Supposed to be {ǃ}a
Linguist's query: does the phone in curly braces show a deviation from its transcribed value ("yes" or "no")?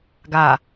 yes